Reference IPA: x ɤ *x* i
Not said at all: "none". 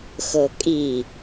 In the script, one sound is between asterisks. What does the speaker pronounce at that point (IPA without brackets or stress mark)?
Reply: kʼ